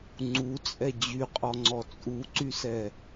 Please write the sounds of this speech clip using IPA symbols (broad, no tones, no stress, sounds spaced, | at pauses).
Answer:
ŋ͡ǀ u t͡sʼ ɛ d͡ʑ y qʼ ɔ ŋ͡ǀ ɔ t͡sʼ u ǀ y s ɛ